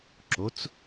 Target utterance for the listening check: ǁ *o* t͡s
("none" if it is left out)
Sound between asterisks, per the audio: o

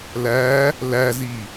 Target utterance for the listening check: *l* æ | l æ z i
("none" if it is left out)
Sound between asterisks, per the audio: l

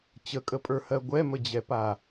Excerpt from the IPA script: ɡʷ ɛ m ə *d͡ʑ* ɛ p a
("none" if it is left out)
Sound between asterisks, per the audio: d͡ʑ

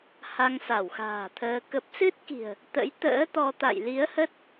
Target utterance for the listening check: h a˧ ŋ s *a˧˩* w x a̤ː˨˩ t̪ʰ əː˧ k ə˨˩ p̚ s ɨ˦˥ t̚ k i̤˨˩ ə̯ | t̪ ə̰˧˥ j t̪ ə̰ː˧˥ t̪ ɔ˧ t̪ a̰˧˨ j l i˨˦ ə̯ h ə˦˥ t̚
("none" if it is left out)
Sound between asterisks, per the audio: a˧˩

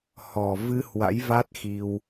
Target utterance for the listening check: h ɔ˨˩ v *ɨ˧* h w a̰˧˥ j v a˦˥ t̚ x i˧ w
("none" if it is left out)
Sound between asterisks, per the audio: ɨ˧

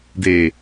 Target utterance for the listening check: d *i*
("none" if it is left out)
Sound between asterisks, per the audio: e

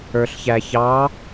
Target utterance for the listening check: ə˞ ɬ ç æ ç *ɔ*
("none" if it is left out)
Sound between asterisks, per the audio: ɑ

